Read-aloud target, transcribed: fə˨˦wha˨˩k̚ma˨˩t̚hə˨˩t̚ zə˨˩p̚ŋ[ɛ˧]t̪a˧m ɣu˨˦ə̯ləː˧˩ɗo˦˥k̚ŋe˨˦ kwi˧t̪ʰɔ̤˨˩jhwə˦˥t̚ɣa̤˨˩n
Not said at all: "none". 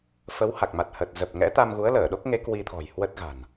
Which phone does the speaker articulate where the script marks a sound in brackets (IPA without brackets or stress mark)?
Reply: ɛ̰˧˥